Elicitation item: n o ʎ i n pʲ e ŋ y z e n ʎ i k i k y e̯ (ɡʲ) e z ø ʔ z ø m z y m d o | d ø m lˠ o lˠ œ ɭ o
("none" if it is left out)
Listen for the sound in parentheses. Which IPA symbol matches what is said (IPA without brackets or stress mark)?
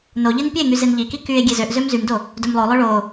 ɡʲ